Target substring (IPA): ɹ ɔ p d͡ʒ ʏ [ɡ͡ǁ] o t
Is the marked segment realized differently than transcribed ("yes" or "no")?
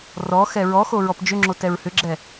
yes